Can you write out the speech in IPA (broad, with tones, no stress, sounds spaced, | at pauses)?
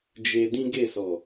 d͡ʒ e˧ d ĩ˦ ɡ e˦˨ s ɔ˨